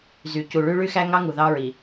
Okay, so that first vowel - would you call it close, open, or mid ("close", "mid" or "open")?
close